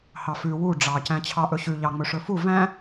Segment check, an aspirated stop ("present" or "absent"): present